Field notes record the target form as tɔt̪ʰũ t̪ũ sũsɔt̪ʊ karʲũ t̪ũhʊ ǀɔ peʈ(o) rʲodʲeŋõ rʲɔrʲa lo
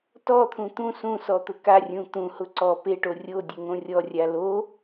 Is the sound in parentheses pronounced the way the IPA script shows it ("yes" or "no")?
yes